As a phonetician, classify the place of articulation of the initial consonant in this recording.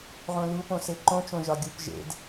uvular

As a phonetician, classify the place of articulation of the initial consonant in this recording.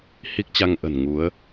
glottal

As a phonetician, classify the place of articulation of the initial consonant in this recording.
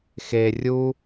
velar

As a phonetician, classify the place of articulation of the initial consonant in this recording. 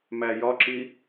labial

